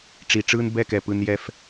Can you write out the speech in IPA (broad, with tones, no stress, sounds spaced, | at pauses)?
ʈ͡ʂ i˨ ʈ͡ʂ ɯ˦ n b ɛ˦˨ k ɛ˨ p ɯ˧ n j ɛ˦˨ f